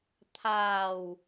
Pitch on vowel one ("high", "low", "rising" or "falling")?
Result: low